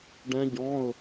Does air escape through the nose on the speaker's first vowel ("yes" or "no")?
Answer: yes